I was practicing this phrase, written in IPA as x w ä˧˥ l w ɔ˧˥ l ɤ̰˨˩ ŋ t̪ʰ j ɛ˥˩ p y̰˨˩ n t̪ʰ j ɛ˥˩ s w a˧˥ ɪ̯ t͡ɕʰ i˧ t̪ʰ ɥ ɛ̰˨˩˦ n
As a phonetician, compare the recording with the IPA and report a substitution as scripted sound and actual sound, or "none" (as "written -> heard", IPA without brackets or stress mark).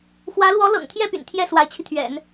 none